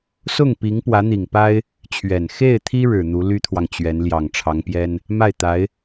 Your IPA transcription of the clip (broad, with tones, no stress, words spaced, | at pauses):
sʊ˥˩ŋpi˧˥ŋ pwä˧˥n̪i˨˩ŋpa˥ɪ̯ | t͡ɕʰɥɛ˨˩n xe˥˩ɪ̯t̪ʰi˥ ɻɻ̩˨˩n̪u˧˥ly˥t̪ʰwɑ˨ŋ t͡ɕɥɛ˧˥n ljɑ˨˩ŋʈ͡ʂʰɑ˧˥ŋpjɛ˥n | ma˥˩ɪ̯t̪a˧˥ɪ̯